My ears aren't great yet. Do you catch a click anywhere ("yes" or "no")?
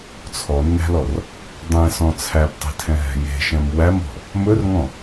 no